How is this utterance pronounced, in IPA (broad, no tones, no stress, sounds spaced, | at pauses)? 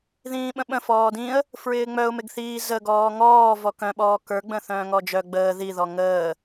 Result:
ð ĩː ɓ ə̃ ɓ ə̃ f ɔː d ĩ ə̯ | f ɹ ɪː ŋ͡m œ ʊ̯ m ɪ ɡ θ iː z ə ɡ ɔː ŋ ɔː v ɔ k œ̃ ɓ ɔː k ə˞ ɡ͡b ə̃ θ œ̃ː ŋ ɔ d͡ʒ œ ɡ͡b əː ð i ð ɔ ŋ əː